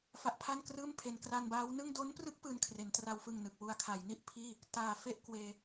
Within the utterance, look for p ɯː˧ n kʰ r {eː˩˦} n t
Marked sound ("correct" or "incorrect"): incorrect